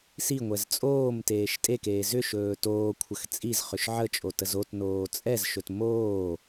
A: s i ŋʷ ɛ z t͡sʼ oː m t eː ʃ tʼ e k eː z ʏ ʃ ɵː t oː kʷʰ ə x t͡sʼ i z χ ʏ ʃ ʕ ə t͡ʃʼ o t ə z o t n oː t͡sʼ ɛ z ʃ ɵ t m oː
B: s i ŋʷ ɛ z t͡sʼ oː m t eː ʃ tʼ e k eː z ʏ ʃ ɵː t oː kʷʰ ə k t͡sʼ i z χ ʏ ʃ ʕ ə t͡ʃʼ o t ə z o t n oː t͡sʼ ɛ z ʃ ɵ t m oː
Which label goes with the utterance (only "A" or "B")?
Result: A